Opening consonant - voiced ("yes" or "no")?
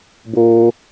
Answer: yes